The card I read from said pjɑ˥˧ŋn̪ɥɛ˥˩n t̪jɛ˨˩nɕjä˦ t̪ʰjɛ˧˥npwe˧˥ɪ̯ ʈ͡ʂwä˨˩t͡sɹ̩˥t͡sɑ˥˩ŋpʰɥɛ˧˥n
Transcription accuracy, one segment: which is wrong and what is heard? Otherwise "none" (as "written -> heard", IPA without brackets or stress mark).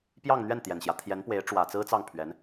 none